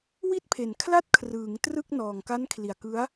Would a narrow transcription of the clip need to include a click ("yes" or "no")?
no